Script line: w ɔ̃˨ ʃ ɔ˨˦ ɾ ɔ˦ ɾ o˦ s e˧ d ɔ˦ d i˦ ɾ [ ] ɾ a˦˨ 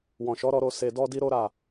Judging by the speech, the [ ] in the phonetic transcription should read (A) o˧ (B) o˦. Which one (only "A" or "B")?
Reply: B